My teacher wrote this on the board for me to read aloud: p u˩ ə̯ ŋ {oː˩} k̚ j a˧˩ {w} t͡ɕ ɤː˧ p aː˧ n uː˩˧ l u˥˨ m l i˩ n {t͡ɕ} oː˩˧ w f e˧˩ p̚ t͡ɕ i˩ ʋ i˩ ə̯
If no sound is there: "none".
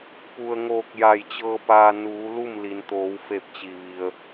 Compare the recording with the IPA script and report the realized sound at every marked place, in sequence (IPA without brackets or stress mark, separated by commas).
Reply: oː˧˩, j, t̪